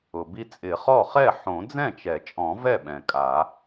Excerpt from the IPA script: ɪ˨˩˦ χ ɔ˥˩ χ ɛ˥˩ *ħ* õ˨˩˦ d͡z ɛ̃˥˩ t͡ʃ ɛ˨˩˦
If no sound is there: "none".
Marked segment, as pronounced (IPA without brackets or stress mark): ħ